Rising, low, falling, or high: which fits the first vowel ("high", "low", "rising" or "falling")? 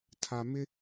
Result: low